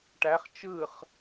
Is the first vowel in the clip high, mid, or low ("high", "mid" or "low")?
low